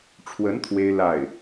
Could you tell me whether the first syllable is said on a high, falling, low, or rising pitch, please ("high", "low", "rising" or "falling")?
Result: rising